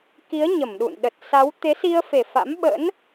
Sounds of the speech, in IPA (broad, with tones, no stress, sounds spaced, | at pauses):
k i˨˦ ə̯ ɲ ə˧˩ m ɗ ṵ˧˨ n ɗ ə˨˩ t̚ s a˨˦ w t̪ e˨˦ s i˧ ə̯ f e˨˩ f a̰˧˥ m ɓ ə̰˧˥ n